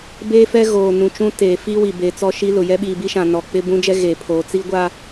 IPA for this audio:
beː˦fɛ˦ ɣoː˨ nũ˨t͡ʃũ˦ teː˨fi˦wi˨be˨ t͡sɔ˦ʃi˦lʊ˨ jɛ˦ɓiː˨bi˦ʃã˨ nɔ˨k͡pɪ˦ bũ˦d͡ʒɛ˦ ɣe˨pʰoː˨ t͡si˦ɡʷa˦

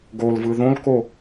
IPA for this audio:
ɡolvɯ ðõlko

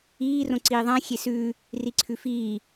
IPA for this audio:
iː rõǀiːðˤã xʲesʉː | riǀʰʉfiː

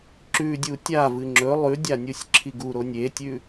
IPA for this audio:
ǁʉdʲu tʲavɨ ŋ͡ǁɵ lˠʉdʲa nʲusʲǁʰiɡuɾonʲ etʲʉ

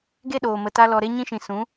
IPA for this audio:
ɡe˦ɗoː˨mə˨ta˧ lɔ˨ɾe˧ɲĩ˧ʃĩ˨ sũ˨˦

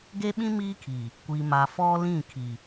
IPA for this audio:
ɡe˦ɓĩ˦ miː˦kʰiː˨ | kʷi˨ma˨ fɔ˦lĩ˦˨ kʰi˨

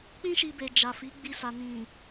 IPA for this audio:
k͡pĩ˦ʃi˧be˨ d͡ʒa˨fi˨˦ ɡ͡bi˧sa˨ nĩ˨

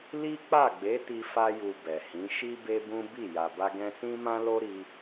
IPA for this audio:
li˦ k͡pa˦˨ɡ͡be˨˦ti˧ fa˧ju˨ bɛ˨hĩ˨˦ ʃi˦be˦bũ˦ bi˦˨ ja˨ba˧ɡɛ̃˧sĩ˦ mã˦lo˦ ɾi˦

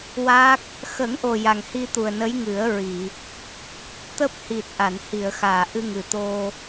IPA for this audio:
wa˦˥k̚ | xə˨˩˦ŋʔo˨˩ ja˨˩ŋhi˧t̪u˨˩ə̯ nə˧˥jŋɨ˨˩˦ə̯ɹi˨˩˨ | t̪əː˦˥p̚ hi˨˩t̚ ʔa˨˩˨nhi˨˩˨ə̯xaː˨˩˨ ʔɨ˧ŋɨ˨˩t̪o˧

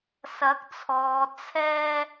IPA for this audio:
sɐ˨˥k̚t͡sʰɔː˨ t͡sʰɛː˧

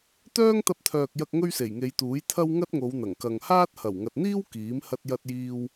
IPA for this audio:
t̪œː˥ŋt̪ɐ˧p̚t̪ʰœː˨k̚jɐ˧k̚ ŋɵ˥ɥse˨˩jŋe˨˧jt̪uː˨˥j t̪ʰɐ˥w ŋɐ˥t̚ŋo˨˧wn̪ɐ˨˩ŋkɐ˨ŋ haː˥t̚hɐ˨˩w ŋɐ˨t̚n̪iː˥w kiː˨˥m hɐ˥t̚jɐ˥t̚jiː˥w

